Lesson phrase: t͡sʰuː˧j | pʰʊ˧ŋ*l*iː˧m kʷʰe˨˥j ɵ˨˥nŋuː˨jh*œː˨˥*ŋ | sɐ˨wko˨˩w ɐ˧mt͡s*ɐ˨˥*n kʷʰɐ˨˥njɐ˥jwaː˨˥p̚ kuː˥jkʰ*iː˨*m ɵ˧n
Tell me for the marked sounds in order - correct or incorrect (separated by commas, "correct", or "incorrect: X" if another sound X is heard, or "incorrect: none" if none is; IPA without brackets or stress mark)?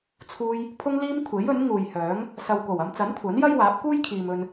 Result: correct, correct, correct, correct